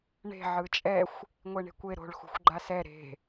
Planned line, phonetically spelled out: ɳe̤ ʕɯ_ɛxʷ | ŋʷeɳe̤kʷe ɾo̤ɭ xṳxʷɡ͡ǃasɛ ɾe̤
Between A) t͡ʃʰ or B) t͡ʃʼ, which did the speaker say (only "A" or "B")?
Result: B